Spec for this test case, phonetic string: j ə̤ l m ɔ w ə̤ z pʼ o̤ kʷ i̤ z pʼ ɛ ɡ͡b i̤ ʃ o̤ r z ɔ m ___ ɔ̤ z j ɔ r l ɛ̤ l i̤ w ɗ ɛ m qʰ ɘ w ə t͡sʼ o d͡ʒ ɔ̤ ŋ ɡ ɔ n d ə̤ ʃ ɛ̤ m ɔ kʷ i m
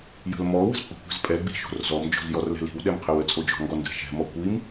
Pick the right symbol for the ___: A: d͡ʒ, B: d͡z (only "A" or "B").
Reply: A